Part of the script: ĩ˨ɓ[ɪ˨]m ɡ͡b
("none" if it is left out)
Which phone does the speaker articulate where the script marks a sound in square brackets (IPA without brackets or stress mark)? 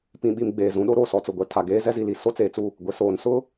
i˨